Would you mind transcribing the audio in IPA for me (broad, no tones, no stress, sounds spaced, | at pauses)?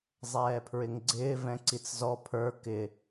zˤ ɛː pʰ ɹ ɪ ŋ ɡ͡ǀ ɪː v ɛ̃ ǀ i t͡s z ɔ pʰ ə˞ k ɪ